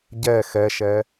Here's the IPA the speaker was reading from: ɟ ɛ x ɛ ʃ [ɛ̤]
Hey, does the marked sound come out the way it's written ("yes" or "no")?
no